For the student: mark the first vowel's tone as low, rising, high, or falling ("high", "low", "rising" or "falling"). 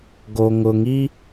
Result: low